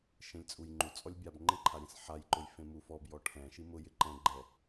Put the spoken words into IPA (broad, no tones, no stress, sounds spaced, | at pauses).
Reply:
ʃ ẽ lʲ t͡sʼ u j ŋ͡ǃ u t͡sʼ ɔ lʲ bʲ a b ŋ͡ǃ ɪ ǃʰ a ɾʲ ẽ s ħ a j ǃ ʊ j f ẽ m u f ɔ b j ɔ ʈʰ ɛ̃ ʃ i m ʊ j ɪ ǃ ɛ̃ ɡ͡ǃ ɛ